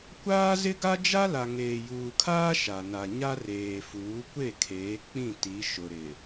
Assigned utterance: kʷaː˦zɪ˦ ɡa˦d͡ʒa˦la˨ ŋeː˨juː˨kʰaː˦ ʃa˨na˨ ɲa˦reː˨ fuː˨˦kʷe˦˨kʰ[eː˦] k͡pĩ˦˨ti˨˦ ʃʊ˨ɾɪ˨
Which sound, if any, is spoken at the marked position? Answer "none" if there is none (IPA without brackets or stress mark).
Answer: eː˨˦